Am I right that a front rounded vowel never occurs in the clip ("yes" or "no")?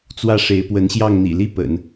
yes